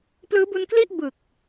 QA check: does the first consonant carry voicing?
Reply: no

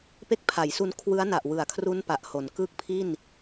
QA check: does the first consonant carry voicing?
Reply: no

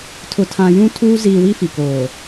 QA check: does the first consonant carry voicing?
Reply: no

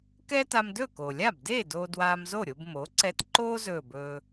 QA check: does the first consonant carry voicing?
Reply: no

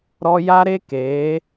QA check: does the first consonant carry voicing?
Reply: yes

